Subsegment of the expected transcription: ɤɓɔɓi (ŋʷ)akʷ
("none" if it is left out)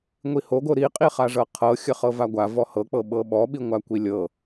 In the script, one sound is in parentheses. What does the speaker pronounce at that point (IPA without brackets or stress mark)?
ŋʷ